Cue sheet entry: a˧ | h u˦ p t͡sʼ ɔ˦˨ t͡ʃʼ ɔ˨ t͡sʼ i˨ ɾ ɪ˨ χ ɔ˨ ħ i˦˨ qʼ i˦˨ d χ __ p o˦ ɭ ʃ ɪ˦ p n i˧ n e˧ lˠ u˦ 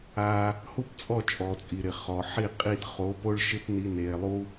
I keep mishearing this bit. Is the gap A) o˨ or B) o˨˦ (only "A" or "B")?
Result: B